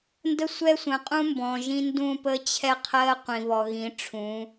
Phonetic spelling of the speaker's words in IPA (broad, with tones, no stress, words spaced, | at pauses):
ndə˦sʷɛ˦sʷə̃˨ qʼũ˦mbɔ̃˨ʒĩ˦ ndũ˦˨pə˦t͡ɕʰɛ˦qʰɜ˦ qʷĩ˨βɔ˨ɣĩ˨˦ ʈ͡ʂʰũ˨˦